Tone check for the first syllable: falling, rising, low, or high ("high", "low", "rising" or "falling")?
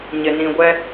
low